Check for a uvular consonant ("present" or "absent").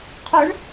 present